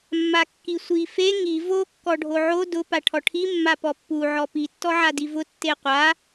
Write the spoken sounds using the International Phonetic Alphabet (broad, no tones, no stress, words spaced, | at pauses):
mːakːisʷi fe ŋi vo kːɔɖʱoʕo dʊ paʈʰɔʈʰi mːapɔpːu ʕɔpi tːɔʕadivʊ tːeqʷa